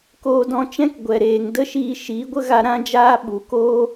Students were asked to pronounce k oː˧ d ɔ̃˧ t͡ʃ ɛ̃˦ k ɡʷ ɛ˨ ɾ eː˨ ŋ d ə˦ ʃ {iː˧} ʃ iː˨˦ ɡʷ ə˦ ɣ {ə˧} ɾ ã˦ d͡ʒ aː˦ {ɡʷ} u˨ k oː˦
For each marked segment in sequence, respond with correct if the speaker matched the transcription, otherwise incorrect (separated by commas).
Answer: correct, incorrect, incorrect